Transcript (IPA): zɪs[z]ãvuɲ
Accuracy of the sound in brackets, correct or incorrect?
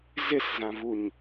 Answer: correct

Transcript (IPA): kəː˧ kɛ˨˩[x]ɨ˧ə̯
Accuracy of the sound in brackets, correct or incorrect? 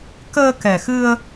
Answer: correct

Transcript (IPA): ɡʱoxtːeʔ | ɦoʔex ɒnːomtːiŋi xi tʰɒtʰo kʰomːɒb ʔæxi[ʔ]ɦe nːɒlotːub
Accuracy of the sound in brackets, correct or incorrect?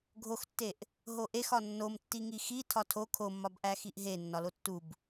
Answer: correct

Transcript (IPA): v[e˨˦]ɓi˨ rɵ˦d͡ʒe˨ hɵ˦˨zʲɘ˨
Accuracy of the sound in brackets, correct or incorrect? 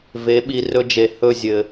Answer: correct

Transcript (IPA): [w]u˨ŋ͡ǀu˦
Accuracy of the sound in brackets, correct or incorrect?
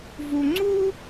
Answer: incorrect: v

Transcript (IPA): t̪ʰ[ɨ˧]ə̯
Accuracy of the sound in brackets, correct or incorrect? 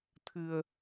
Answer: correct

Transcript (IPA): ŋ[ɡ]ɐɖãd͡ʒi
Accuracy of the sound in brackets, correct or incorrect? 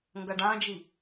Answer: correct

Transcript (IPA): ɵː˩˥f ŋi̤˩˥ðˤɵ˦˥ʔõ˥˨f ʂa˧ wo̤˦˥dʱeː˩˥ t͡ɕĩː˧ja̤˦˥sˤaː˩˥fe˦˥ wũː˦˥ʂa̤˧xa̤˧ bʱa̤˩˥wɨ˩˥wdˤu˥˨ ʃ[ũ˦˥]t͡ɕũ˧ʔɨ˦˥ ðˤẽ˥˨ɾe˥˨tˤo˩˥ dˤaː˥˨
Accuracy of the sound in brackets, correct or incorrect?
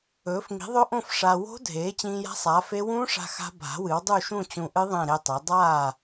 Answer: incorrect: ũ˥˨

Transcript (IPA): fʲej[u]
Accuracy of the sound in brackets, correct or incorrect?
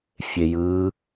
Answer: incorrect: ɯ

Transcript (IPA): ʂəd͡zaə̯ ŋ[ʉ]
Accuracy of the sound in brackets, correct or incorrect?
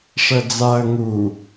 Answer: incorrect: u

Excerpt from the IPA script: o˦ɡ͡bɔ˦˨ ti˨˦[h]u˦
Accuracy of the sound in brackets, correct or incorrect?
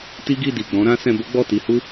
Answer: correct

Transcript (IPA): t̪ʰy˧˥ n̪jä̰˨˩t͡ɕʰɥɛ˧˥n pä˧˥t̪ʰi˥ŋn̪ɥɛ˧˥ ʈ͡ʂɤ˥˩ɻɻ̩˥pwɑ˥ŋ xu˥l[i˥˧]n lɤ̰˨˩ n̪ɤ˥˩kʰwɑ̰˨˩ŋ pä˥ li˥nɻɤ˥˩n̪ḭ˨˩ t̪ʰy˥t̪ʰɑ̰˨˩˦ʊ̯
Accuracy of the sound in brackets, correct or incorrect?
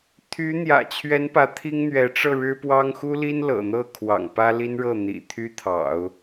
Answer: incorrect: i˥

